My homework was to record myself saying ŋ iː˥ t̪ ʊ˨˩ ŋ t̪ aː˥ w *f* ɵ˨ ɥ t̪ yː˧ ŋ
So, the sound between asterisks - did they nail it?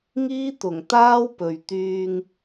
no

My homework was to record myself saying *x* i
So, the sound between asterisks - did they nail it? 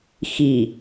yes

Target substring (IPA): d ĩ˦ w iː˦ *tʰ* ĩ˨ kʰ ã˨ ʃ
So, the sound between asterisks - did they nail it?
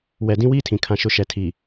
yes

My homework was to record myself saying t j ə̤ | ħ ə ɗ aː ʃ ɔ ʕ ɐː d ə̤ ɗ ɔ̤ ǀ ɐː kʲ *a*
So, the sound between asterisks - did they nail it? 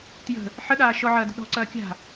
no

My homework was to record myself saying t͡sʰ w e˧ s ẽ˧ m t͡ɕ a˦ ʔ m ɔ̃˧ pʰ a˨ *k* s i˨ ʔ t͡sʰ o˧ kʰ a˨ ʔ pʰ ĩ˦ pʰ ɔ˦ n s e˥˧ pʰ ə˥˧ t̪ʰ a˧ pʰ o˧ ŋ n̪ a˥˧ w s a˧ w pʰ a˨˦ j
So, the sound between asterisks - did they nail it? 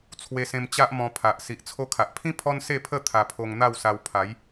no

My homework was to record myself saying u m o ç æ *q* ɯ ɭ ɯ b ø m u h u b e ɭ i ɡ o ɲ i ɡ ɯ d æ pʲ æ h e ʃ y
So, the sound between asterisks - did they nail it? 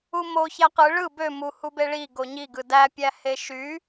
yes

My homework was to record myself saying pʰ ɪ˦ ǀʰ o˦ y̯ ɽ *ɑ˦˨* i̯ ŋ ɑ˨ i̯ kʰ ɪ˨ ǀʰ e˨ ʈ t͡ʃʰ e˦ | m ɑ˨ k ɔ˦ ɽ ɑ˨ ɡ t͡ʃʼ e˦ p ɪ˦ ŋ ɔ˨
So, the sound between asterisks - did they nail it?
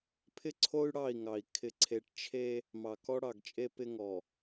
yes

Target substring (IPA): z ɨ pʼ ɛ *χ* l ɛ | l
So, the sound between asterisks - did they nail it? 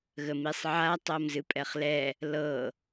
yes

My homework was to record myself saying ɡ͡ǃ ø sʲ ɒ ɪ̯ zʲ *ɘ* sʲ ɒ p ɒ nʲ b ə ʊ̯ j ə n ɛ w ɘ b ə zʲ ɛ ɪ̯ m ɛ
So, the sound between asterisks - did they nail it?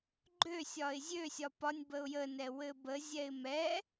no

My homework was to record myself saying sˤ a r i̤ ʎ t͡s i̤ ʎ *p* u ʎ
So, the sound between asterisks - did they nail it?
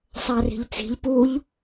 yes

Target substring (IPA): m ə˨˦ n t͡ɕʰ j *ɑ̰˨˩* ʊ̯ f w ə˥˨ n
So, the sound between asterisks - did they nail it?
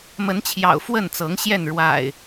yes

